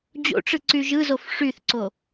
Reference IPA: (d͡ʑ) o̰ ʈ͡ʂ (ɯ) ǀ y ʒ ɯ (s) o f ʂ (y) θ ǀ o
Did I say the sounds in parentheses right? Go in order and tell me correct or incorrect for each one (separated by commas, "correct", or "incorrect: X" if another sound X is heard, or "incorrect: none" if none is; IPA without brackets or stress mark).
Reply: correct, correct, incorrect: z, correct